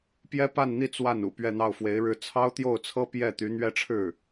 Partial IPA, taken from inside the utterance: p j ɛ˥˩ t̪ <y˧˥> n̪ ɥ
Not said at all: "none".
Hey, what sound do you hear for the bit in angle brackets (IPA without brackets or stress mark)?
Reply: y˧˥